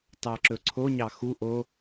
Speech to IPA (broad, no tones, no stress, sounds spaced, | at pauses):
t ɑ ǁ ɵ ǀʰ o ɲ ɑ x u ʔ o